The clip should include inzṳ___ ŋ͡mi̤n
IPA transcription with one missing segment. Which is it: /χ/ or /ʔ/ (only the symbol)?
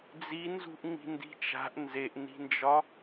ʔ